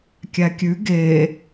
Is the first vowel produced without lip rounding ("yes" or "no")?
yes